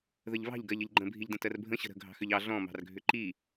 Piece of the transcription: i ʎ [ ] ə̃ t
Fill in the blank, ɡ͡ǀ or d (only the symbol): d